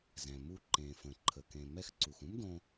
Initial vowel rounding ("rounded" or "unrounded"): unrounded